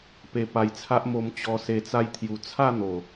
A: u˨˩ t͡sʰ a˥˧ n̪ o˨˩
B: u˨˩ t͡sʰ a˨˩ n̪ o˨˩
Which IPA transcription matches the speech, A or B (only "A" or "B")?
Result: A